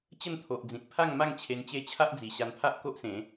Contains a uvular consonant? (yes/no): no